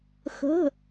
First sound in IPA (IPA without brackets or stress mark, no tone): x